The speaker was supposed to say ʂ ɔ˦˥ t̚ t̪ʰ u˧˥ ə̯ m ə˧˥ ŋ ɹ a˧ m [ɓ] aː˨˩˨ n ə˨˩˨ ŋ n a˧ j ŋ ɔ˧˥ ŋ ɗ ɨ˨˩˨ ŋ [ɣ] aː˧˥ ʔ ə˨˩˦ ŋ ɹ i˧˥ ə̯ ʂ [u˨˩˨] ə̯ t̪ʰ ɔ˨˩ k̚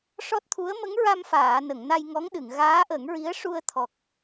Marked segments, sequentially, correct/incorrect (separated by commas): incorrect, correct, incorrect